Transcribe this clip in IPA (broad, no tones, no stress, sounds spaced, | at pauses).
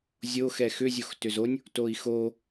zʲ o x ɛ x ʏ zʲ o x t ʏ z o nʲ | t o i̯ x o